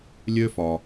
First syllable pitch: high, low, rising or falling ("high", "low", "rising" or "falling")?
high